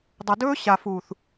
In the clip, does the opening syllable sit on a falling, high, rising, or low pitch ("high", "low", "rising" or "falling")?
low